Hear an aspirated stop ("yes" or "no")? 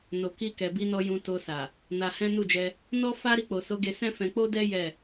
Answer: no